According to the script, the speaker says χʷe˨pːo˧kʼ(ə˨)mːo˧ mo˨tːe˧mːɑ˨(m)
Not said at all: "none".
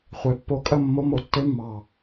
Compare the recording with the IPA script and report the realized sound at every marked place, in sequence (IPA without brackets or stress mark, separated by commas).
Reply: ə˦˨, none